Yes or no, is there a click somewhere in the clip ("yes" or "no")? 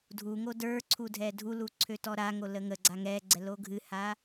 yes